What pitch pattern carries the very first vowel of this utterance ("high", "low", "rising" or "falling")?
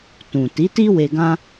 low